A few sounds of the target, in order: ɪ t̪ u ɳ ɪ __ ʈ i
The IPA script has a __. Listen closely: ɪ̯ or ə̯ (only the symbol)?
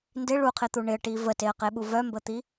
ə̯